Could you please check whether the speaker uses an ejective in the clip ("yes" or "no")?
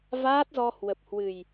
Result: no